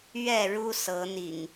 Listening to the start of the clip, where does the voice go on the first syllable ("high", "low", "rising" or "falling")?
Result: falling